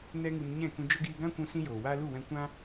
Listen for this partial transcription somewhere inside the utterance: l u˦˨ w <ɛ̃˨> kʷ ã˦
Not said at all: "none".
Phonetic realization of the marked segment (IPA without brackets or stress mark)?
ɛ̃˧